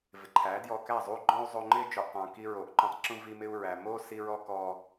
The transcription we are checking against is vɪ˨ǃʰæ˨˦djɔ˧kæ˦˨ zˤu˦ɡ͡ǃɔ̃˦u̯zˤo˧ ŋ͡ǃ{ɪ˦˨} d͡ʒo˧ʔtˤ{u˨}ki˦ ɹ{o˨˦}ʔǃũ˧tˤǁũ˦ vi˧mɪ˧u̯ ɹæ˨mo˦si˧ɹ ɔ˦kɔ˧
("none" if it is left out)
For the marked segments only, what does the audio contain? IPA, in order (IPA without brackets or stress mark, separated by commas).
ɪ˦, ũ˨, o˨˦